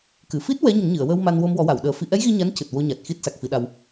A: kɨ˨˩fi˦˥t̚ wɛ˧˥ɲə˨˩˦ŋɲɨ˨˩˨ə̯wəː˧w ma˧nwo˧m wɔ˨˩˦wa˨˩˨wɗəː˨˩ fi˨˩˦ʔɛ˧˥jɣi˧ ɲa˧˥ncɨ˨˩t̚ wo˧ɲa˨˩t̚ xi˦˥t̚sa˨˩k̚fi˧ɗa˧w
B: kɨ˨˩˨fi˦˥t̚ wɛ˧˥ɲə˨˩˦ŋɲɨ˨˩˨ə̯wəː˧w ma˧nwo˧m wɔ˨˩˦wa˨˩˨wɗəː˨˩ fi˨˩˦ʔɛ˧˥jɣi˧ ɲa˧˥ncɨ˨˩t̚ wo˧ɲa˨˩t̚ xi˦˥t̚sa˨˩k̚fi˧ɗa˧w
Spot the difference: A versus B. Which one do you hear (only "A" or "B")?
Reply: B